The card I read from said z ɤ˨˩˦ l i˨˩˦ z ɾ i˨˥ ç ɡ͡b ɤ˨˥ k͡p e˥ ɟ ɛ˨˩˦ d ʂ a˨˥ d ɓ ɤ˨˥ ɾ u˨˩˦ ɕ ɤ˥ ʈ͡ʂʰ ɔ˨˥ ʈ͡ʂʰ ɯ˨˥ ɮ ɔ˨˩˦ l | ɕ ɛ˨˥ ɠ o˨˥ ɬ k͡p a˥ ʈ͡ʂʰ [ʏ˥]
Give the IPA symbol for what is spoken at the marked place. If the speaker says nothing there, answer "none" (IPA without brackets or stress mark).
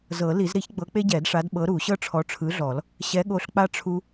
u˥